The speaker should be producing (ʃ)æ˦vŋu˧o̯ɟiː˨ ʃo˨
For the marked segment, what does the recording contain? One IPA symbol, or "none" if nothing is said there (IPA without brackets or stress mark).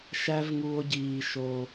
ʃ